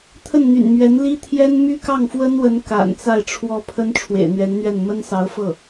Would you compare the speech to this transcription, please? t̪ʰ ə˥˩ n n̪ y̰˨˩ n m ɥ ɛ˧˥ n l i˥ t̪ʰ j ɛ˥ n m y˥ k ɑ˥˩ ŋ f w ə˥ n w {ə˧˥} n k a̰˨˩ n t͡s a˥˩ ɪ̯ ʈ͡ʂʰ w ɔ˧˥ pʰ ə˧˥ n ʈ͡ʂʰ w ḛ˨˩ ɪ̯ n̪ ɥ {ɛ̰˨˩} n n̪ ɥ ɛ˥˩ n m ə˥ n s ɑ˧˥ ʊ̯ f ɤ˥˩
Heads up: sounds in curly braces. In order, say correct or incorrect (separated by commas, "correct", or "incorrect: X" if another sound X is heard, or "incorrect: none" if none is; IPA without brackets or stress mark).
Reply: correct, incorrect: ɛ˧˥